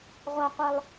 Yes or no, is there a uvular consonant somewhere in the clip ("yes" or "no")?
yes